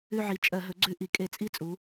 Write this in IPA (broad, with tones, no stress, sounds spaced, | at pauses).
ʉ˦˨ ʕ i˨˩ t͡ʃʼ ɜ˧˩˧ ɦ ɵ˩˥ ɡ͡ǀ ʉ˧˩˧ ʔ i˩˧ kʼ e˧˩˧ t͡sʼ i˦˥ t͡sʼ u˩˧